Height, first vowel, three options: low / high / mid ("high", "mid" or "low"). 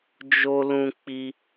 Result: mid